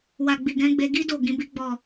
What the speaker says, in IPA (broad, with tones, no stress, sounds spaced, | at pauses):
w a˨ ɡ͡b i˨ ɡ ɛ̃˨˦ ɡ͡b e˧ ɡ i˦ d o˦˨ ɡ ĩ˨˦ b i˦ ɡ͡b ɔ˦˨